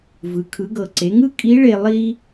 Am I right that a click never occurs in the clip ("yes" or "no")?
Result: no